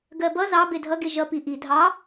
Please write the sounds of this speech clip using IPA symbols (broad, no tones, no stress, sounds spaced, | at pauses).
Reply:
ɡ ɜ b ʌ z ɑ b e dʱ ʌ ɡ e ʒ ʌ p i ʔ i dʱ ɑ